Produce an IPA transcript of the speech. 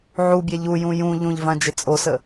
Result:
ʕ u bʲ ɛ ʎ u j ũ j ũ ʎ ũ ʎ v ã d͡ʒ ɪ t͡sʼ o s ə

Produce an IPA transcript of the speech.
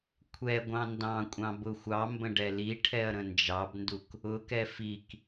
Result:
kʷʰ ɛ ɡʷ ɑ̃ n d ɑ̃ kʷʼ ɑ̃ b ʊ xʷ ɑ m b ə̃ ɖ ɛ l i ʈʰ ɛ ɐ̯ ɾ ə̃ n d͡ʒ ɑ b n d u k | ʊ k ɛ f i k

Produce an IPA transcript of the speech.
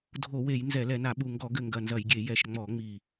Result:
dʱ o˧˩˧ w e˧˩˧ j n z ɛ˧˩˧ l ɛ˧˩˧ n a˧˩˧ ɓ u˨˩ ŋ ɡ ɔ˧˩˧ ɡ ɘ˨˩ ŋ ɡ ɐ˨˩ n z ɐ˧˩˧ j ɡʲ e˧˩˧ j ɛ˨˩ ʃ ŋ͡m ɔ˧˩˧ ŋ͡m i˨˩

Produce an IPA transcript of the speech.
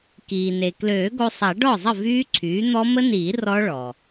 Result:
k iː˩ n e˩ k l øː˨˩˦ ɡ o˧ sˤ a˨˩˦ ɖ ɔ˥˩ zˤ ə˥˩ v yː˦˥ ǀʰ yː˩˥ n̪ ɔ˦˥ m ə˦˥ n iː˨˩˦ r ɔ˦˥ ɭ ɔ˩

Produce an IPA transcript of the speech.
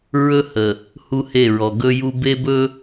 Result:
ɹ ɵ˦ h ə˨ | h u˦ h e˦˨ ɹ ɔ˨ ɡ ɵ˦ j u˦ b e˦ b ɵ˦

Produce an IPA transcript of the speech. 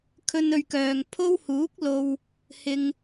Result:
kʰ ɵ˥ n ɵ˧ ɥ k œː˨ ŋ pʰ o˥ w h uː˨˥ k̚ l o˨ w | h ɪ˨ ŋ

